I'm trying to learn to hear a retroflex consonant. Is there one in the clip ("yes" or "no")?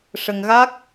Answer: yes